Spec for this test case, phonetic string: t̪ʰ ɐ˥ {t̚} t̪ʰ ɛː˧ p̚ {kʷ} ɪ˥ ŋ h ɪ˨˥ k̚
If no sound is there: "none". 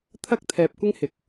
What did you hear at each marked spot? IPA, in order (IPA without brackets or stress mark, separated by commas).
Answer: k̚, kʷ